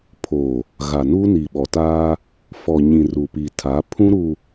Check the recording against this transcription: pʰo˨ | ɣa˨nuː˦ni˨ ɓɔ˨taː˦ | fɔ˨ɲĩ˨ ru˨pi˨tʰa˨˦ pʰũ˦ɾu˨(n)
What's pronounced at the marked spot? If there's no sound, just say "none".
none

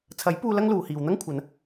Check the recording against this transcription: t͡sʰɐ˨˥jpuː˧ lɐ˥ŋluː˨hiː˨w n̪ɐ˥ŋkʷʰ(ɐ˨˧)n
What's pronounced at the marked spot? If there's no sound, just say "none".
ɐ˨˧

